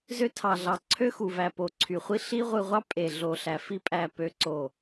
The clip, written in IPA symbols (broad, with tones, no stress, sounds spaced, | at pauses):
z ø˧ tʰ ɑ˨ ɮ ɑ˨ ǀʰ ø˦ x u˨ v æ˨ p o˨ ǀʰ y˨ χʷ i˦ ɬ i˦ ʁʷ ɯ˧ ʁʷ ɑ˦ pʼ e˨ ɮ o˨ ɬ æ˨ f i˧ pʼ æ˨ p ø˧ ǀ o˨